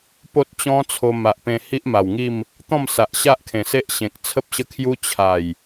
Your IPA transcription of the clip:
po˦t̚t͡ɕɔ̃˦t͡sʰo˧ ma˨ʔpẽ˧ hi˦ʔma˨˩wŋi˥˧m | t̪ɔ̃˥˧msa˨ʔɕa˦ʔ kʰẽ˨˩ se˦ʔɕẽ˨k̚ t͡sʰə˦p̚ɕə˦kʰju˦ t͡ɕʰa˨˩j

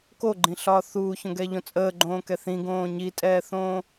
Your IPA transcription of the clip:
koɡ͡ǃĩɬɒː θuːçõɡɛːʎõ t͡sʼəːɡ͡ǃõːkɛ θĩɡõː ɲitʼɛːθõː

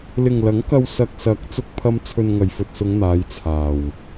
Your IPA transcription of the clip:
lɪ˨ŋlɐ˨˥ŋkɐ˧w sɐ˨k̚sɐ˨˥k̚ t͡sʊ˥k̚pʰɐ˥m t͡sʰɵ˧nŋɐ˨˩jfɵ˨t̚sʊ˨˧ŋ n̪aː˨˧jt͡sʰaː˨˩w

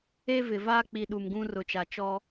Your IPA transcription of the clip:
e˦vɪ˨ vaː˦k͡pi˨ ɗu˨mɡũ˦rʊ˨t͡ʃa˨ t͡ʃɔ˦

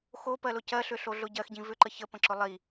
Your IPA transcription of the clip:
xopɜlʊ cɜɬʏɬoɮʊ ɟɜxɟĩ vʏǃə çəpə̃ǁʊ lˠi

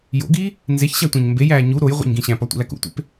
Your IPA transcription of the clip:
jo̰ɡiː | nzeçɕætʷæ̃ɲ mbejæː ɲu ɾojʁʷḛɲɡĩ ɕæ̃pɒtʷḭlæk ṵtʷḛp

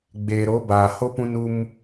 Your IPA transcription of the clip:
ɡ͡beː˨ɾo˨˦baː˨ho˦ pũ˦nu˦m

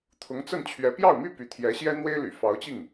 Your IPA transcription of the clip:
t̪ʰʊ˧˥ŋt͡sə˥˩nt͡ɕʰɥɛ˧˥ pjɑ˥˩ʊ̯my˥ py˧˥ t̪ʰjɛ˧˥ɕjɛ˥ n̪we˥ɪ̯ly̰˨˩ fɑ˧˥ʊ̯t͡ɕi˥˩ŋ

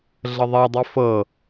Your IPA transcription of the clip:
ɮəðˤɛdˤi fɤ

